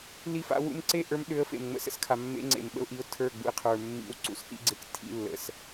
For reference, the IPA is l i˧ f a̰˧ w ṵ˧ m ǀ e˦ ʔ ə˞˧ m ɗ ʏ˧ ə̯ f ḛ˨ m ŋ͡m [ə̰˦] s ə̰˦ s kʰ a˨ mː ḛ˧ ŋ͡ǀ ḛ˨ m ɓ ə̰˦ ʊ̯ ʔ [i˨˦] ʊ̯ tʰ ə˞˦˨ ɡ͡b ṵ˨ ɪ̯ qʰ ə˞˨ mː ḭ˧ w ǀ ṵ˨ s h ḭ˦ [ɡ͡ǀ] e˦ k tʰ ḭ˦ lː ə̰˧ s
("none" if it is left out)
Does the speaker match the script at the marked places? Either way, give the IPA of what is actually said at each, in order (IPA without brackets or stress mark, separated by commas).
ə̰˧, i˨˦, ɡ͡ǀ